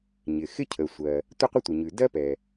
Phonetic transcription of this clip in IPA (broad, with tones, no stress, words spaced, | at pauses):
ɲɪ˩ xɪ˥cʰə˩sʷɜ˩ | tʷɪ˥qʷə˥tʷə˩ɲʉ˩ dɜ˥pɛ˩